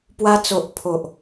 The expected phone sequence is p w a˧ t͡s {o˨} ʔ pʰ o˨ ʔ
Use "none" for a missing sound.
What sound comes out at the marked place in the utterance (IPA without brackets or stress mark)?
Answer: o˨